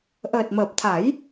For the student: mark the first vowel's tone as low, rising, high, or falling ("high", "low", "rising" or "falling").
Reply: low